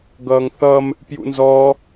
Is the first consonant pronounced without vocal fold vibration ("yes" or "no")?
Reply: no